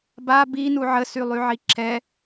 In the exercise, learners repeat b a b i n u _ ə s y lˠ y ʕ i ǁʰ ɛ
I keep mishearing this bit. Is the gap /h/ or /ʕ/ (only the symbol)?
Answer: ʕ